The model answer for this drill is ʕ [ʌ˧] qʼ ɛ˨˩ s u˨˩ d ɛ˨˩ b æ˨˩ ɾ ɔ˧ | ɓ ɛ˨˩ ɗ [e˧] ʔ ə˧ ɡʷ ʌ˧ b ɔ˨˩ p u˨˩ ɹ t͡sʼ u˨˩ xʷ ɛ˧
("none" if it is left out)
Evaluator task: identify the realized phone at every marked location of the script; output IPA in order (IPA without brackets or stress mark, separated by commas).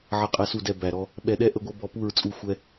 ʌ˨˩, ɛ˧